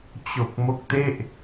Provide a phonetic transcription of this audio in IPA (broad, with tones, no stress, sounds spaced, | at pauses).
t͡ɕ o˨˩ k̚ m o˦˥ k̚ t e˥˩ ʔ